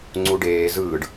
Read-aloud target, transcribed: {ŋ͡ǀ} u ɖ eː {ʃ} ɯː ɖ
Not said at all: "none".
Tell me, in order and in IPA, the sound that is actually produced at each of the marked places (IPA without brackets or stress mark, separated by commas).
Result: ŋ͡ǀ, z